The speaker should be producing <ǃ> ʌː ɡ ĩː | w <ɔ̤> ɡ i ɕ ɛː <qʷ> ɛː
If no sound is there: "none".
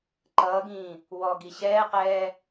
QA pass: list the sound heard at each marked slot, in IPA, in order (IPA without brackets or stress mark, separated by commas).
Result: ǃ, ɔ, q